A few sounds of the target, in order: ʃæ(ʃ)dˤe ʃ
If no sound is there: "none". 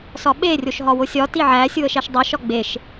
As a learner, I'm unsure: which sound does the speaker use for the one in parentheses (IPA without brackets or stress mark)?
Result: ʃ